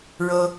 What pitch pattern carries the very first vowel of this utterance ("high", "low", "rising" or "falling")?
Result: high